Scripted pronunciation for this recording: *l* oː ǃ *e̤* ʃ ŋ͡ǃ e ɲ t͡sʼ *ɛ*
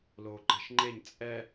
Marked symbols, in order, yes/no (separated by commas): yes, yes, yes